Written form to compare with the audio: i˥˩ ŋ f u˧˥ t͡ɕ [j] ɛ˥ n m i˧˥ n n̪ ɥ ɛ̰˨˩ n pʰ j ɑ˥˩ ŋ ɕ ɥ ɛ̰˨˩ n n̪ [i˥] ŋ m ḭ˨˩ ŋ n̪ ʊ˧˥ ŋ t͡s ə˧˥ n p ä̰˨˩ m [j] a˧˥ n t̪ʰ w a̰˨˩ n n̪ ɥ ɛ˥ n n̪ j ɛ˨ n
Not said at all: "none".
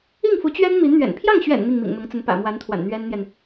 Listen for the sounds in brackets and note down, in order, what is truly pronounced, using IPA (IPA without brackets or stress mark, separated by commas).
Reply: ɥ, i˥˩, w